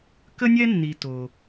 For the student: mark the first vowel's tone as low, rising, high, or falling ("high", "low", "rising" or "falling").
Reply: high